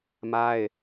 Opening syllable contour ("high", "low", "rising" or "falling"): high